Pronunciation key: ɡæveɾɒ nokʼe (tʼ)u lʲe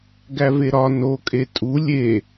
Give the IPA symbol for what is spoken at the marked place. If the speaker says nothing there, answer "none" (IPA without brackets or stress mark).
tʼ